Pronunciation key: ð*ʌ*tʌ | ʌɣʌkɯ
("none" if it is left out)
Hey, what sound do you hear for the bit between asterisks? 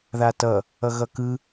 a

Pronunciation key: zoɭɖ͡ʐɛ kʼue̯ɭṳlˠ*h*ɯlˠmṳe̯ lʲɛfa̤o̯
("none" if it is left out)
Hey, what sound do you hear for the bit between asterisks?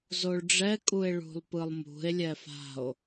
p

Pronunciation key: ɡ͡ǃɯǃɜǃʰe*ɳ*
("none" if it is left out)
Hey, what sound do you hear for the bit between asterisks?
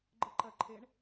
ɳ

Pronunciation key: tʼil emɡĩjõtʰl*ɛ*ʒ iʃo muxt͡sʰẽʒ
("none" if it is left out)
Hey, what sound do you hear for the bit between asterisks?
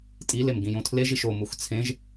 e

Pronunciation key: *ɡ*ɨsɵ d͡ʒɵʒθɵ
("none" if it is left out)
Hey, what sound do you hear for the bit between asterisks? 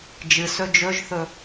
d͡ʒ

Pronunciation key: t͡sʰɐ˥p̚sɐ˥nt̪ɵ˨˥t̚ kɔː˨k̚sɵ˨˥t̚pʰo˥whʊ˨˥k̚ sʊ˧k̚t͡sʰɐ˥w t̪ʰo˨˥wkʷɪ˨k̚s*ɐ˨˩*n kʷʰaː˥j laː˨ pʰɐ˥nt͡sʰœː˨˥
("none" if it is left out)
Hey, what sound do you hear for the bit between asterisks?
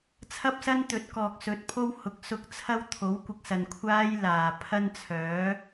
ɐ˨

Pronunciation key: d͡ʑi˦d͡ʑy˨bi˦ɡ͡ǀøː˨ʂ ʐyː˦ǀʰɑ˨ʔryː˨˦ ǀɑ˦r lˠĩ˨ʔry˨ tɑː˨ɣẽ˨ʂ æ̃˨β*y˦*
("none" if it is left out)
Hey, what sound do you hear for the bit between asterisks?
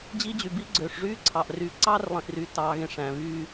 yː˦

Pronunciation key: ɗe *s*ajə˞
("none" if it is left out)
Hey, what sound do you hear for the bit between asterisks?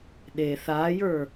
θ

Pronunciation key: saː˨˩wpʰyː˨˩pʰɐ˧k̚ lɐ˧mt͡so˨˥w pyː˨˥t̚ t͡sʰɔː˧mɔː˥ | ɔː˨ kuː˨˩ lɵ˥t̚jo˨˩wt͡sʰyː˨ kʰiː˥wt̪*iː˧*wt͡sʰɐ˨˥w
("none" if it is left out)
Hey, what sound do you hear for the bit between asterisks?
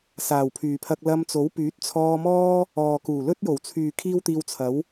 iː˧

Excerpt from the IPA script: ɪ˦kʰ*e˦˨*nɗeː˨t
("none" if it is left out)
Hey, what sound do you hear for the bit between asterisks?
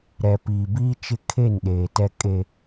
e˦˨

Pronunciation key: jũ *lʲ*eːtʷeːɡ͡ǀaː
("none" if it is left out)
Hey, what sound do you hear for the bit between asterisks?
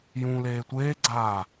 l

